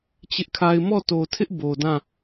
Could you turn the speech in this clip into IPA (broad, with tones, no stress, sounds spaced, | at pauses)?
t͡ɕ ɪ˦ ʔ kʰ a˦ ɪ̯ m ɔ˦˨ t o˨ tʰ ɪ˦ ʔ b o˨ d ã˦˨